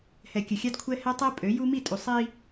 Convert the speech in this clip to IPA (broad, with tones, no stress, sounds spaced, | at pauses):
h ɛ˨ kʲ ə˨ xʲ a˦ d kʷʰ ɛ˦ h ɛ˦ tˤ ɛ˦ pʼ ø˨˦ j u˦ m i˦˨ tʼ u˨ sˤ i˦